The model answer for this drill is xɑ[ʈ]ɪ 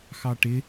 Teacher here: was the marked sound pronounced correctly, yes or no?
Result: yes